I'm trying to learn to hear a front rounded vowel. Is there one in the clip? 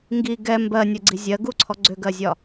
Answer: yes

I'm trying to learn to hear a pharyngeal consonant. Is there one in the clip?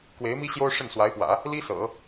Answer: no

